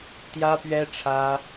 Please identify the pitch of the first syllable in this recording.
high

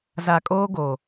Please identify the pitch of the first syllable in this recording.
low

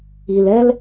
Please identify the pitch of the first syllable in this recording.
low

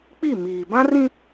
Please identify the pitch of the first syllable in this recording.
falling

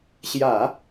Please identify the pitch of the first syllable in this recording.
low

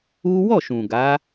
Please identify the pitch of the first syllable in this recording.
high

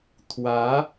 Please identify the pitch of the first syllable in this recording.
rising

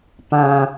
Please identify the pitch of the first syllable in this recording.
low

